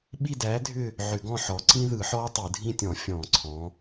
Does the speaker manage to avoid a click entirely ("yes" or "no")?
no